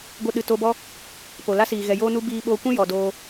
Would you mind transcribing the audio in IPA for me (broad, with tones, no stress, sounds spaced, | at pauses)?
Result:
ɡʷ ə˧ ɗ ɨ˨ t o˧ b ɔ˦ | p o˨ l a˦ s iː˨ ɣ ɛ˨ j oː˦ n u˦ b iː˧ ɓ oː˧ kʷ ĩ˦ j ɔ˨ d oː˧